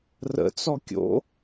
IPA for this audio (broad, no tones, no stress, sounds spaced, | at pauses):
r ə̰ t͡s ɔ kʲ o̰